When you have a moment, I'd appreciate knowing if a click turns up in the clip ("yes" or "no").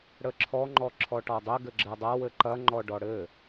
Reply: yes